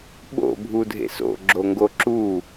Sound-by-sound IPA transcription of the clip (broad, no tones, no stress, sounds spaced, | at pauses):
ɓ o̰ bʱ u dʱ ḛ s o̰ ɡ͡ǁ o ŋ ɡ o ǁ u